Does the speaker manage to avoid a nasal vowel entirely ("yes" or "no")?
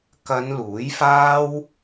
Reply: yes